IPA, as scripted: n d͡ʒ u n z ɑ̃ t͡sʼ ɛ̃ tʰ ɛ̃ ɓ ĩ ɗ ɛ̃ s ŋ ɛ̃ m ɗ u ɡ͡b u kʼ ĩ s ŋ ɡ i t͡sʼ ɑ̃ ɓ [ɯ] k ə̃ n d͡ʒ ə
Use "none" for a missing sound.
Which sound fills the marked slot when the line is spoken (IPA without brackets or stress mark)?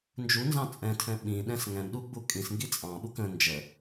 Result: u